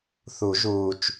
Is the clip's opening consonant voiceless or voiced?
voiceless